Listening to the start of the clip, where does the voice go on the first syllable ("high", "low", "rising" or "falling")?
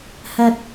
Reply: low